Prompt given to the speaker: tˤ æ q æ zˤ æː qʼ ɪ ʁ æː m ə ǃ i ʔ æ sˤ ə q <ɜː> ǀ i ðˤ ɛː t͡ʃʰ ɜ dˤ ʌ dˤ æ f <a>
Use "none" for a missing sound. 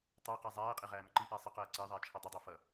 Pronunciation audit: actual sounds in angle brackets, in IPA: ɜː, ʌ

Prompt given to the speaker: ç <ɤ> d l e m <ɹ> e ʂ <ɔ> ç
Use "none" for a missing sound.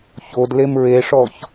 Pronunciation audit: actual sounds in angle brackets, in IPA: o, ɹ, ɔ

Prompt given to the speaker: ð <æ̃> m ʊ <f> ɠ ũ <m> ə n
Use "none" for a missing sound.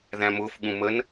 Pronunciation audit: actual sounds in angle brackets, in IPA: æ̃, f, m

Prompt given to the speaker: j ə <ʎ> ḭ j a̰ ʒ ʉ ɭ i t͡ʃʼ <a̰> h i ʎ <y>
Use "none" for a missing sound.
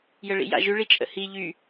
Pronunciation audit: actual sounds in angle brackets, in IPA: ɭ, ə̰, y

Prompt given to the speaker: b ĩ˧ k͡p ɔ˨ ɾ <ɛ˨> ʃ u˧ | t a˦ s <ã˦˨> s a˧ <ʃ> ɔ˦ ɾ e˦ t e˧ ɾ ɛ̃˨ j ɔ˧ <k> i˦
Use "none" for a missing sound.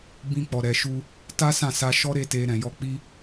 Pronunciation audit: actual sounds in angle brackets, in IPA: ɛ˨, ã˦˨, ʃ, k͡p

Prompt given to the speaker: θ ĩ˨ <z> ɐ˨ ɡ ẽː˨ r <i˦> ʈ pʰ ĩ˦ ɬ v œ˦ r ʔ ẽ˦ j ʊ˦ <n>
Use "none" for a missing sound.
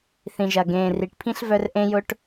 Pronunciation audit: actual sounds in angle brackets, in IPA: ʒ, i˨, ʈ

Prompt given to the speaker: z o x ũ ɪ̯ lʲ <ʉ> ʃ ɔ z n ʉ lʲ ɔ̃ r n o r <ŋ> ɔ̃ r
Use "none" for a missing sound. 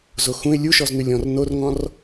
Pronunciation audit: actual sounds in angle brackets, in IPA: u, ŋ

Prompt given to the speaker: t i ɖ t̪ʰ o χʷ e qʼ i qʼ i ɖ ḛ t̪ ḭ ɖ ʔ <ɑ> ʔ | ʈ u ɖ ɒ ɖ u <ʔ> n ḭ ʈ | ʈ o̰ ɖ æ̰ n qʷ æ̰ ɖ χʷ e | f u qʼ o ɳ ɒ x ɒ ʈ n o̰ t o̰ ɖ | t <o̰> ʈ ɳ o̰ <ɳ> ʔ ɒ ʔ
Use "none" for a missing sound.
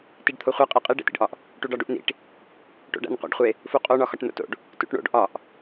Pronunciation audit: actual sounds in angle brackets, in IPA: ɒ, ʔ, ṵ, ɖ

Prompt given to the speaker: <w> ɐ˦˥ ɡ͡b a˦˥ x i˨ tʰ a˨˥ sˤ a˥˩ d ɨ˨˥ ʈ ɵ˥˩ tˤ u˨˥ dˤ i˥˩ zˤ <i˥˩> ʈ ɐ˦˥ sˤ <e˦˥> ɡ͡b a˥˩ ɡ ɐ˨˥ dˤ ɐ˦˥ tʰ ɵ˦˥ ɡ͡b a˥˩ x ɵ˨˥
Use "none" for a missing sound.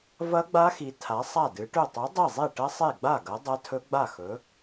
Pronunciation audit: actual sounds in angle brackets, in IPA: v, i˥˩, e˥˩

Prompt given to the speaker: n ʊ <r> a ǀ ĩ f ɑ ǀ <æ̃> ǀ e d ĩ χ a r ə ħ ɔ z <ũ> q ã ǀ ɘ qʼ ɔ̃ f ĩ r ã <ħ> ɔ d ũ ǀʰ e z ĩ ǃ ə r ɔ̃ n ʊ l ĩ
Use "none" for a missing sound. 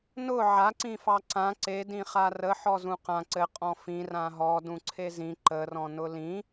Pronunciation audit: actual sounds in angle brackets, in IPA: ʕ, ã, ũ, ɦ

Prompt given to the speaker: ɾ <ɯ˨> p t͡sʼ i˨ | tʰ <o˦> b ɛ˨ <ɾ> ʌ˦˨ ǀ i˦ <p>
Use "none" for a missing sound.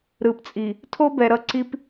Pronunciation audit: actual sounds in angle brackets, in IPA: ɯ˨, o˦, ɾ, p

